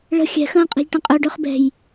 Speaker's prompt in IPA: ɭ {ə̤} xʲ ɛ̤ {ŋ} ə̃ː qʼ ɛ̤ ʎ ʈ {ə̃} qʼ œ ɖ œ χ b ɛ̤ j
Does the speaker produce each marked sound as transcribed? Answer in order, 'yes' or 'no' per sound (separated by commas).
yes, no, yes